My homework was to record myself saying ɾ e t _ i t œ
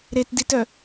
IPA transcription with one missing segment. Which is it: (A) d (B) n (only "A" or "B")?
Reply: A